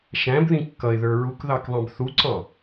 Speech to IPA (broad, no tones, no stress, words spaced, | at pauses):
ʃæ̃bðĩ kːʌɪ̯ðə˞ ɹukðɑkðˤɑ̃b θuǀɑ̃